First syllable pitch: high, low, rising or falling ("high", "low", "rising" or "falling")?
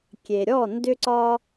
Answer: low